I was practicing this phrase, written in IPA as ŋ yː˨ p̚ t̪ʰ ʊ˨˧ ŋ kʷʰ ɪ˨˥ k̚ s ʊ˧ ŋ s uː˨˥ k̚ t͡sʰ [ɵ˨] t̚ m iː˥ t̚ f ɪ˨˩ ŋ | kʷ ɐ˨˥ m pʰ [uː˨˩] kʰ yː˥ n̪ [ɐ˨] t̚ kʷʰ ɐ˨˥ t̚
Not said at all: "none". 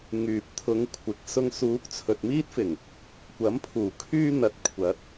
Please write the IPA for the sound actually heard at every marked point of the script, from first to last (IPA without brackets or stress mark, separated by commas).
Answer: ɵ˨, uː˨˩, ɐ˨